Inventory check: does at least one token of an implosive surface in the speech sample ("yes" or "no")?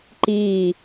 no